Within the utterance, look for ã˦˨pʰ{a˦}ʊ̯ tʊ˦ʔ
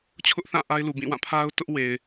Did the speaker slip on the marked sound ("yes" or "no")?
no